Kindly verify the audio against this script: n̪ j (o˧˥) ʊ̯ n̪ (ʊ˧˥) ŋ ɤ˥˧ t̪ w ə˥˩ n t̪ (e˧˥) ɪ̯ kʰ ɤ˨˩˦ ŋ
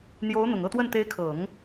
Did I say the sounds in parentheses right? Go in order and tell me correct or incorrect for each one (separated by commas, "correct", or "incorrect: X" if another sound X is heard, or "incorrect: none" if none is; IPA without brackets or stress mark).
correct, incorrect: ʊ˨˩, correct